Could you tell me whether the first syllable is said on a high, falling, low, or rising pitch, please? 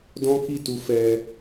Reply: high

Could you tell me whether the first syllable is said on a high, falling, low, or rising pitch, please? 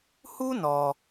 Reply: high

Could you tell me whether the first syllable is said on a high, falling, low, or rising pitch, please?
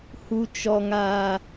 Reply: high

